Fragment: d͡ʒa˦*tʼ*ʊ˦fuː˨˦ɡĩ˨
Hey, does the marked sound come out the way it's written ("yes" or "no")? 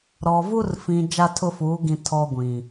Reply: no